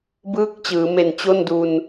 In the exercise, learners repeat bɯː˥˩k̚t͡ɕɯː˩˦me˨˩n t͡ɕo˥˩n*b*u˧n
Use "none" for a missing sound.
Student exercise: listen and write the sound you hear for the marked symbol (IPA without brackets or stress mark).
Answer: d